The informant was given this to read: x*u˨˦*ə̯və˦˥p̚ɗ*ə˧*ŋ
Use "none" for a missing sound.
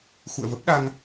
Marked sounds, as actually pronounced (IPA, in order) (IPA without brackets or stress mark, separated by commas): ṵ˧˨, a˧